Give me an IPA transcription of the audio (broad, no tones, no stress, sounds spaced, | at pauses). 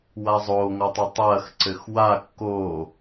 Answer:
w a zˤ oː ŋ ɔ tˤ ɘ tˤ ɐː x ǀ ɘ x w a kː oː